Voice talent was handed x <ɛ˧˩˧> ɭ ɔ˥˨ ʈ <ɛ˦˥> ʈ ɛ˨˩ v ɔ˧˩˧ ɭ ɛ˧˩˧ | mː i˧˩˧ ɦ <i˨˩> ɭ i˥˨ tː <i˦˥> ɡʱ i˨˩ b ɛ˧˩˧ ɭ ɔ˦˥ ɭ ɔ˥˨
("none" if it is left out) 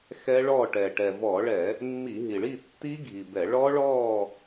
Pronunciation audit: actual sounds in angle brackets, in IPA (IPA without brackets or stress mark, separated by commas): ɛ˦˥, ɛ˨˩, i˨˩, i˦˥